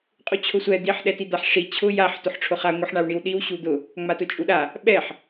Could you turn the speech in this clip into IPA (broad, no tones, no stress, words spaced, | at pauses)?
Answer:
qʼut͡ɕʰʊsʷɛ d̪iħ ɗɛtid̪aħʂi t͡ɕʰʊ jaħ tʊħʈ͡ʂʰʊχa ŋʷiħɳawɳiwɗiw ɕud̪ʊ | ŋ͡matʊt͡ʃʼuɗa | ɓɛħ